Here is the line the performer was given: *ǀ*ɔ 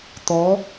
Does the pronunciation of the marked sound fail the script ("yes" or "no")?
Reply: yes